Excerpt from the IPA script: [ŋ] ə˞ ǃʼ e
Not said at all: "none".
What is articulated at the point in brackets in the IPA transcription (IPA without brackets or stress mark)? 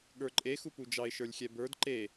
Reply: ɠ